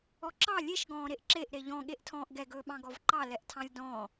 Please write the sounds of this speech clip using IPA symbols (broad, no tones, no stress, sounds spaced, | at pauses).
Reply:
ɔ ǁ ɑ lʲ e ʃ ɡ ɔ̃ː ɾ e ʔ ǁ e ʔ ɾ e ʎ ɔ̃ ɠ e ʔ tʰ ɔ̃ː ʔ ɡ ɛ ɡ ɵː ɓ ɑ̃ ɡ ɔ v ǃ ɑ l ɛ ʔ tʰ ɑ̃ lʲ d ɔ̃ː